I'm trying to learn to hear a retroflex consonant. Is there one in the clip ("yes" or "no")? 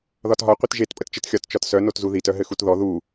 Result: no